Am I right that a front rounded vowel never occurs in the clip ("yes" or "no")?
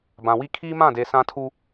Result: yes